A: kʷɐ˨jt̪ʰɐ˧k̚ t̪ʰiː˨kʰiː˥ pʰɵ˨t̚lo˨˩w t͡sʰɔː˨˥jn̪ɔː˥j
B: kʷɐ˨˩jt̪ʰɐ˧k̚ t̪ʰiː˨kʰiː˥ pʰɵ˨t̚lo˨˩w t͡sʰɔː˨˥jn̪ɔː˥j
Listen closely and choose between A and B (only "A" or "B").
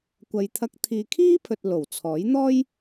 A